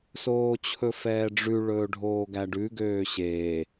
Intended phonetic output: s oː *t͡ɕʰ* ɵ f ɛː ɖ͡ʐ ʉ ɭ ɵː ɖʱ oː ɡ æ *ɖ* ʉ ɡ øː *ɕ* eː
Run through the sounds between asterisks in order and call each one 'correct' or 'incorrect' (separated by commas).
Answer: correct, correct, correct